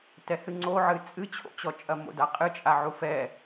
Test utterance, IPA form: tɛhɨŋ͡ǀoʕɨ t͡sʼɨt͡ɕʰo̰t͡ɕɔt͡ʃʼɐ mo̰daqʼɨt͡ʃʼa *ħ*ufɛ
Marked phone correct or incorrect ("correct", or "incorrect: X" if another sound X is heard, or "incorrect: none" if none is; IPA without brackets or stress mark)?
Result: incorrect: ʕ